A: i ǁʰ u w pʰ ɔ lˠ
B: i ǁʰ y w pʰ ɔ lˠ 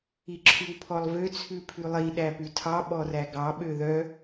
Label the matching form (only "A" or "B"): B